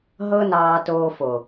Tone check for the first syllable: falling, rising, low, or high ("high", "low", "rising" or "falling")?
high